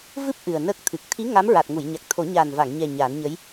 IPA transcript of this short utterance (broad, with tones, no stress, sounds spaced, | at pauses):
v ɨ˦˥ p̚ ʔ ɨ˨˩ ə̯ n ə˦˥ k̚ t̪ʰ ɨ˨˩ k̚ t̪ʰ i˧˥ ŋ a˧˥ m ɹ a˨˩ t̚ ŋ u˨˩˨ j ɲ a˨˩ k̚ t̪ʰ o˨˩˦ ɲ a˨˩ n v a˨˩˨ ŋ ɲ ɛ˨˩ ɲ a˨˩˦ n ɲ ə˧˥ j